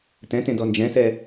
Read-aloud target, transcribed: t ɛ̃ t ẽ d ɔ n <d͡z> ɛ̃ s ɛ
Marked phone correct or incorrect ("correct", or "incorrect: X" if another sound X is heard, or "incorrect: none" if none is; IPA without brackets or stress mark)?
incorrect: d͡ʒ